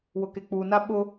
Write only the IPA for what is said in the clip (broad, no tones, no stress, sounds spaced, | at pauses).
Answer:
w ʊ k e k͡p u n a ɓ ʊ